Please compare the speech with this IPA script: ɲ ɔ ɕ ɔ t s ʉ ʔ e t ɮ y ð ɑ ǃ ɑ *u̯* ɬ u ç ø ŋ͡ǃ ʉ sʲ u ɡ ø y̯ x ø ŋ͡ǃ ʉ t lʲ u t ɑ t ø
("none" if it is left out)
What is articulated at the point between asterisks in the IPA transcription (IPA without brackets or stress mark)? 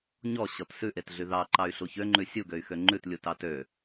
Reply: y̯